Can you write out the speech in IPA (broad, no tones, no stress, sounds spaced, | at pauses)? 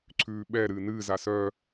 ǀʰ ʉː ɓ ɛ ɾ ɨː n ɨː z a s œ